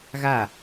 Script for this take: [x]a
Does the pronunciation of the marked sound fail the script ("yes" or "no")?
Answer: yes